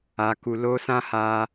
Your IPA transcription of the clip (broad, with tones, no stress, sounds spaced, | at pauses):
a˨ k u˨ l o˧ s ã˦ h a˧